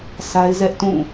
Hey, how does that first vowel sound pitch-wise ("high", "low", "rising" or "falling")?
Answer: high